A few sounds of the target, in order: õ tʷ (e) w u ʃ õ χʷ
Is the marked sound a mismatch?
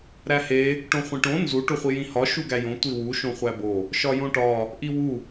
yes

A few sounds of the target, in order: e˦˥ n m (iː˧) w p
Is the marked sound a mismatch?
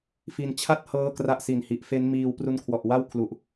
no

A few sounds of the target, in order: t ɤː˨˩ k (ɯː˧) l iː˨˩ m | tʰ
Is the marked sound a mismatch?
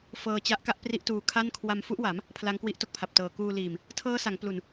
yes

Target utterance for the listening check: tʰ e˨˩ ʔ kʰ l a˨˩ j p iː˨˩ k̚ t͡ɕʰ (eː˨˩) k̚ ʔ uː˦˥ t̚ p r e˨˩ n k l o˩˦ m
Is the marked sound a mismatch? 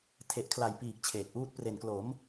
no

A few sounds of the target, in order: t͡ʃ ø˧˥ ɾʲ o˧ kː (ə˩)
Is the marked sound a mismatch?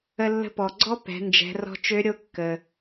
no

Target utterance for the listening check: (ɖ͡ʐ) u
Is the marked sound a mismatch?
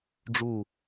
no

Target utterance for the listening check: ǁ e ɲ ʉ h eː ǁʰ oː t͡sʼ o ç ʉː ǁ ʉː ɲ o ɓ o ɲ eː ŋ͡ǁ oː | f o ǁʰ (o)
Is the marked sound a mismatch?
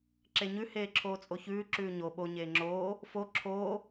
yes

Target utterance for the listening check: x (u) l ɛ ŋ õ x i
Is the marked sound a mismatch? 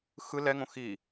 yes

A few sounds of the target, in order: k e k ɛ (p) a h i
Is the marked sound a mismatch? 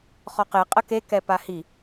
no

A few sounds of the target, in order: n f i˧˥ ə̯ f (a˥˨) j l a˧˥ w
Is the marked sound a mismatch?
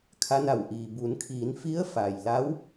yes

